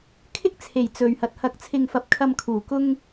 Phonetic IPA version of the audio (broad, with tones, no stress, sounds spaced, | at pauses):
kʰ ɪ˥ k̚ t͡sʰ e˨˩ j t͡s ɵ˨ ɥ h ɐ˨ t̚ h ɐ˨˥ k̚ t͡sʰ ɪ˨ ŋ f ɐ˨ p̚ kʰ ɐ˨ m kʰ uː˨˩ k ʊ˧ ŋ